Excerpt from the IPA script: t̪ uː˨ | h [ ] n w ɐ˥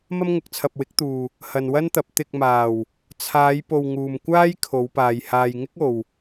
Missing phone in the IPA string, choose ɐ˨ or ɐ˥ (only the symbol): ɐ˨